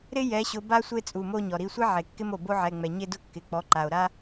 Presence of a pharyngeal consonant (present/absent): present